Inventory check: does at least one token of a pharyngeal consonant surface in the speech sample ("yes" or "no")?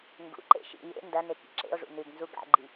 no